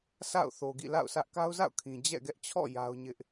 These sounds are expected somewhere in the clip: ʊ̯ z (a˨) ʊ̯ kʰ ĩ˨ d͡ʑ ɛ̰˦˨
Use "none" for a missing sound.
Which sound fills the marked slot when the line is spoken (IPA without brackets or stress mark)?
a̰˦˨